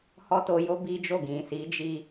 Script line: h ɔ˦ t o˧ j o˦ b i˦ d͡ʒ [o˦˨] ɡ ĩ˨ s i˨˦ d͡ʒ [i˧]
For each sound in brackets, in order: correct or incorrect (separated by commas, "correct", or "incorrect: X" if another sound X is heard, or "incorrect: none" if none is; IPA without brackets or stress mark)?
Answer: correct, correct